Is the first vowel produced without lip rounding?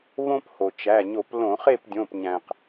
no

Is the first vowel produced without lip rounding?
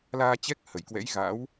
yes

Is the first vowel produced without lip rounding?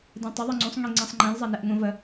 yes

